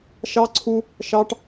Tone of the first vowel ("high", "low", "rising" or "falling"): high